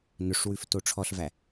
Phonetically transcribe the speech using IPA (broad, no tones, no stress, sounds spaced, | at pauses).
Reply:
n ɵ ʂ w ʉ f t o ʈ͡ʂʰ ɔ ɬ v æ